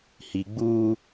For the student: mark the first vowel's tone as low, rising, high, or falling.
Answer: low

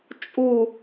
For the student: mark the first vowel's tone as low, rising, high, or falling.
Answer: falling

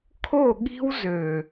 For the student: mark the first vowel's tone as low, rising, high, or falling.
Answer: falling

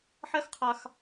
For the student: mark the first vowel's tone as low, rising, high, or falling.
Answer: high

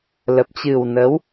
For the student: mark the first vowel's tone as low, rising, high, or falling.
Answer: low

